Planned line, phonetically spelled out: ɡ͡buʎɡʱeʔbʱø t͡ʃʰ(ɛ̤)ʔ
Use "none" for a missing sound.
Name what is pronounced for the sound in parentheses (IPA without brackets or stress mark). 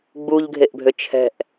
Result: ɛ̤